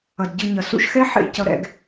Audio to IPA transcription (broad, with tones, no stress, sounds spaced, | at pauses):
ʌ˨ d ɟ ɯ˧ ɲ ʌ˨ s ṵ˧ ʃ x ɛ˦ ħ ḛ˧ c ʌ˧ ɾ ɛ̰˧ ɡ